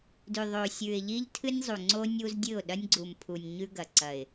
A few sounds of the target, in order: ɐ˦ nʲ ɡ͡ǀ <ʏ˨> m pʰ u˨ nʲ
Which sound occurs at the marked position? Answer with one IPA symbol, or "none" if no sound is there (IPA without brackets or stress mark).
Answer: u˨